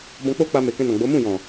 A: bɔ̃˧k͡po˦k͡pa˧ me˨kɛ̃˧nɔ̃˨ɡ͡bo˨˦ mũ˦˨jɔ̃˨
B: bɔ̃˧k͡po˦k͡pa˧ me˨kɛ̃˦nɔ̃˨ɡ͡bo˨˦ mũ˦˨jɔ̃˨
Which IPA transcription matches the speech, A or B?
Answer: A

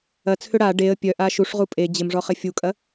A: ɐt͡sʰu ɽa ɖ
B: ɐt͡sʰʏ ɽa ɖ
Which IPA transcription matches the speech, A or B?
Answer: B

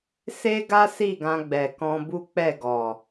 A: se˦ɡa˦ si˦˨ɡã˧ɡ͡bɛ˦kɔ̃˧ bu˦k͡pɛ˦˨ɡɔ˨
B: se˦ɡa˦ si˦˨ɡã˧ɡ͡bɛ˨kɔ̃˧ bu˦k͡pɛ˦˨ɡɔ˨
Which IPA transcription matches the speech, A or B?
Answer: B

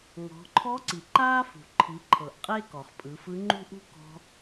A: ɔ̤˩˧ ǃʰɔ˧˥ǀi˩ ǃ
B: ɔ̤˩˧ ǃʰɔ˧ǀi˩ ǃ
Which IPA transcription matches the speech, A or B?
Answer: A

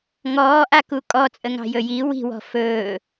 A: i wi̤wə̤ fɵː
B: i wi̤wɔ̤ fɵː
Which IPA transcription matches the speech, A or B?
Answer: B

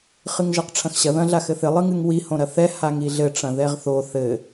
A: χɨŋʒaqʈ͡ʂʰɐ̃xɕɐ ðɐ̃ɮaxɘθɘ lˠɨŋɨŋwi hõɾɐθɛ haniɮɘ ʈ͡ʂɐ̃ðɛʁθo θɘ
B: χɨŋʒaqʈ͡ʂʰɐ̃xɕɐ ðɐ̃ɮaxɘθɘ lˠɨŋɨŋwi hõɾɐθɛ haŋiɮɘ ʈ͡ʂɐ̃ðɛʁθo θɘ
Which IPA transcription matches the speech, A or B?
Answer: B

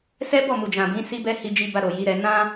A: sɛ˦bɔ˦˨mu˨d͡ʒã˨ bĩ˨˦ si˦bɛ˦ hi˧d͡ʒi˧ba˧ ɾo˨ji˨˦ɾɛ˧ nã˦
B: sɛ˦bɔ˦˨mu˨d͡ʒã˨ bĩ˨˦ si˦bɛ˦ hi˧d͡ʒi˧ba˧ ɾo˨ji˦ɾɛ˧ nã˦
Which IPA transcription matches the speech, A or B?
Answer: A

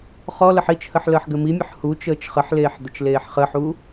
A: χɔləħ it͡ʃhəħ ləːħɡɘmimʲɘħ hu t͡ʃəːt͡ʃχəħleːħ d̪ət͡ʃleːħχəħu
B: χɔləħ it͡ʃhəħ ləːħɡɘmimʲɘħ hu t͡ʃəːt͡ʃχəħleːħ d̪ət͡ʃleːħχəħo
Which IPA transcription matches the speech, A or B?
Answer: A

